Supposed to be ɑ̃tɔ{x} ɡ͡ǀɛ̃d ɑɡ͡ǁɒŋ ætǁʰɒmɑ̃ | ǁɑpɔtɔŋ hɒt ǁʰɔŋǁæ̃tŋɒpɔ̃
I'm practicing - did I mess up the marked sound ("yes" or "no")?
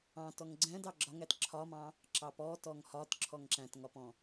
yes